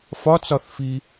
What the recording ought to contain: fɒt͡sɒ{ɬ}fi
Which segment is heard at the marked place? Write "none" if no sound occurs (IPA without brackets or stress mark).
θ